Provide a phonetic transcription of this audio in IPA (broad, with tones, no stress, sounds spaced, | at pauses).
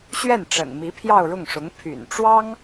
ɕ ɥ ɛ˥˩ n ʈ͡ʂ ə̰˨˩ n m i˧˥ pʰ j ɑ˥˧ ʊ̯ ɻ ʊ˥˩ ŋ ʂ ʊ˧˥ ŋ pʰ y̰˨˩ n ʈ͡ʂ w ɑ˥ ŋ